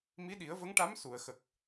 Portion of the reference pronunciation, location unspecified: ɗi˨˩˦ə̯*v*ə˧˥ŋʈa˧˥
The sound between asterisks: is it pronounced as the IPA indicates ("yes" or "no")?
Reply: yes